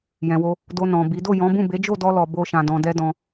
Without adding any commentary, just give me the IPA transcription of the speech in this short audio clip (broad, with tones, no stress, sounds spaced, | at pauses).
j ɛ̃˨ w o˧ | d o˧ n ɔ̃˨ b i˨˦ d o˦˨ j ɔ̃˨˦ b ũ˦˨ b e˨˦ d͡ʒ o˦˨ d ɔ˧ l ɔ˧ b o˦ ʃ ã˧ d ɔ̃˧ d ɛ˦ d ɔ̃˧